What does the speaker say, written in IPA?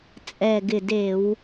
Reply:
t͡sʼ ɛ˨˩ ɡ ɪ˨˩ d e˧˩˧ w

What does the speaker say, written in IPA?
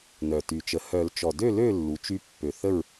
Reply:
n œ˨˩ t y˨˩ t͡ʃ ə˨˩˦ h œ˨˩˦ l t͡ʃ ɔ˨˩ d ø˥˨ l ø˥˨ lː u˩˥ t͡ʃ y˧˥ pː ø˨˩ θ ə˥˨ ɹ

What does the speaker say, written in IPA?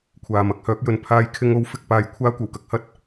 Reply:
kʷʰ aː˨ m ɐ˨˥ k̚ h œː˨˥ k̚ j ɵ˨˧ n pʰ aː˧ j kʰ ɪ˧ ŋ o˨˥ w f ɪ˨ k̚ p aː˨ j kʷʰ aː˥ kʷ ɐ˨˩ w k ɐ˧ k̚ h ɐ˥ t̚

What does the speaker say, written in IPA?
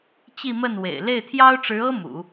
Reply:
t͡ɕ i˥˧ m ə˥˩ n w ḛ˨˩ ɪ̯ l e˥˩ ɪ̯ t̪ʰ j ɑ˥ ʊ̯ ʈ͡ʂ ɻ̩˧˥ ɤ˥ m ṵ˨˩˦

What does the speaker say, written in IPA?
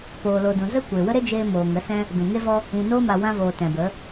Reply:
p oː˨ l o˨ d ũ˨ z ə˦ kʷ e˨ w ə˦ ɾ e˦ d͡ʒ eː˧ m oː˨ ŋ ə˨˦ s ɛ̃˦ | d ũ˨ ŋ e˦ v ɔ˦ | ĩ˨ n oː˦ m a˨ w ã˧ v oː˨ t ɛ̃˨ b ə˨˦

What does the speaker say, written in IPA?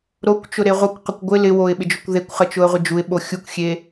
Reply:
ɾ o kʷ t͡ʃ ʊ ɾ e ʁʷ ə kʷ q ə kʷ ɡʷ ɪ l ɪ w o ɪ̯ ɓ ɪ d͡ʒ ʊ kʷ ð e kʷ χ ə t͡ʃ ʊ ə̯ ʁʷ ɪ d͡ʒ u ɪ̯ ɓ o xʲ u kʷ xʲ e

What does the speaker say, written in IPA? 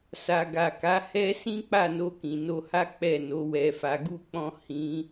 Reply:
s a˨ ɡ a˨ k a˨˦ h ɛ˦ s ĩ˦ k͡p a˦˨ n o˧ k ĩ˨ n o˧ h a˦ k͡p ɛ˦˨ n o˨˦ w ɛ˧ f a˧ ɡ u˦ k͡p ɔ̃˦ h ĩ˦

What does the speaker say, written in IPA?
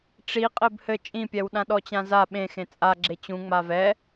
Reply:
ʈ͡ʂ i qʼ ɘ b h ɘ t͡ʃʼ ĩ pʲ ɛ w ɗ ã ɗ ɔ t͡ɕ ã z a ɓ ẽ x ẽ t͡sʼ a ɡ͡ǁ e t͡ɕ ũ ŋ͡m a v ɛ

